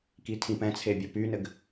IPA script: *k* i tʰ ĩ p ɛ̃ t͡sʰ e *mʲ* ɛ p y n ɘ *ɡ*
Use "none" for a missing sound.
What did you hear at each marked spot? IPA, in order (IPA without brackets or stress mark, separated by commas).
k, bʲ, ɡ